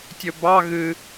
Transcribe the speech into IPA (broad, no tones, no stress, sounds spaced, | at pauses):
tʲ ɵ b ɑ ɣ ɨ